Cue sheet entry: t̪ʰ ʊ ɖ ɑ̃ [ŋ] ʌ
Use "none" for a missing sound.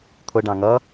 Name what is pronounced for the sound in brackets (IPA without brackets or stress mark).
ŋ